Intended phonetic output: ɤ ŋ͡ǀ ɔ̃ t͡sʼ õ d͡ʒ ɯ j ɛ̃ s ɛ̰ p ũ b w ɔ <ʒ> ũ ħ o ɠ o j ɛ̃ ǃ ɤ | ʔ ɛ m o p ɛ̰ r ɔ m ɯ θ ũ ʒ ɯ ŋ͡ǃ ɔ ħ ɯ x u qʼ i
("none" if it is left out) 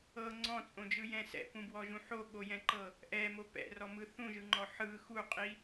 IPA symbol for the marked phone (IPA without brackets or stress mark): ʒ